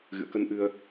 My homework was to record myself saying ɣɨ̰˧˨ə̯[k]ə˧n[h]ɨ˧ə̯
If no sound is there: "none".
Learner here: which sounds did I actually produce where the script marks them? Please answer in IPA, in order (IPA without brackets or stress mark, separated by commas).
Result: k, ʔ